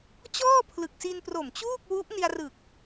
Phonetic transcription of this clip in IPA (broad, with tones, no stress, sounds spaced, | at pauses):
t͡ɕ ɔː˥˩ pʰ l ɯ˨˩ k̚ s i˧ n p r o˨˩ m t͡ɕ uː˥˩ k̚ w u˦˥ ʔ n i˧ a̯ r ɯ˨˩ k̚